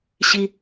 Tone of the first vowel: high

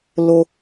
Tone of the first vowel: high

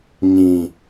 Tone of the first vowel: low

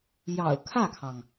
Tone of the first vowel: low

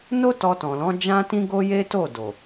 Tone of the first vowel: high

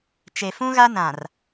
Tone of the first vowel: low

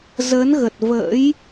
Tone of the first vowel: rising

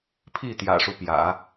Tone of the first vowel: falling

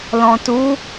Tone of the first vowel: low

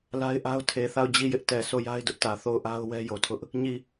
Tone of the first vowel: high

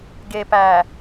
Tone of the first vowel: low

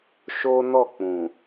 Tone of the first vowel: high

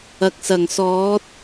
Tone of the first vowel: low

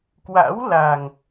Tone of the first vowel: rising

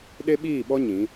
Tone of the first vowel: high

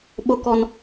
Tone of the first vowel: high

